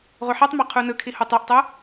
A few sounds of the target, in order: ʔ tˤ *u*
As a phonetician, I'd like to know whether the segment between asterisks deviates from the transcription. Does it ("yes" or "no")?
yes